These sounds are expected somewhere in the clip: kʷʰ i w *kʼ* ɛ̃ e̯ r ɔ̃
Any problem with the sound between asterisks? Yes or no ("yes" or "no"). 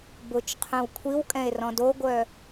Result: no